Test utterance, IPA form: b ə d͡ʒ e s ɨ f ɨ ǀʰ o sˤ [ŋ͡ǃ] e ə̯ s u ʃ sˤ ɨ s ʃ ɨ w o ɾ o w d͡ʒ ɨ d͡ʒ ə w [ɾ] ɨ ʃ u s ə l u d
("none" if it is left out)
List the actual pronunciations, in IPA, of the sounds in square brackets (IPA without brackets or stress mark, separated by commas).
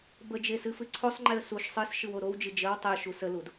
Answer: ŋ͡ǃ, tˤ